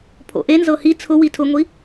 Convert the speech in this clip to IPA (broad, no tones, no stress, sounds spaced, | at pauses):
pʰ o̰ ʔ e n z ɤ h i t͡sʰ ʊ w i tʰ ʊ ŋʷ i